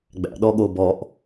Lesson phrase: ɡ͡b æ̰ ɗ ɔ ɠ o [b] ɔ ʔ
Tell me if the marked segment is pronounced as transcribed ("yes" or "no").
yes